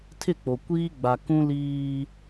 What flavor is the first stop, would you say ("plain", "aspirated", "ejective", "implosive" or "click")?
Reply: aspirated